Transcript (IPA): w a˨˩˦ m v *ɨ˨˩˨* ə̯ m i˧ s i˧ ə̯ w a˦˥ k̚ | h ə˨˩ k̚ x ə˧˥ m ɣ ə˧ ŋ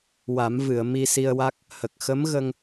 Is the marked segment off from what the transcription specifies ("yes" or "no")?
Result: no